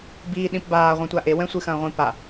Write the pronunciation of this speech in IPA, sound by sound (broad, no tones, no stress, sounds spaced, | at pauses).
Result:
b iː ɗ ĩ p b aː ʁʷ ɛ̃ tʷ a ʔ e w ɛ̃ sʷ ɨ x ɐ̃ː ʁʷ ĩ p a